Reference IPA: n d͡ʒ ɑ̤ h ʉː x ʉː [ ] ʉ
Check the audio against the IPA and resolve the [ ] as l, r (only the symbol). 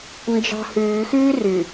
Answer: r